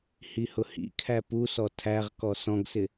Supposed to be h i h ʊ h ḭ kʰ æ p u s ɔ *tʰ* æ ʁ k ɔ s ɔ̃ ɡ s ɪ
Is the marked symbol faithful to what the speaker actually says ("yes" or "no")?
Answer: yes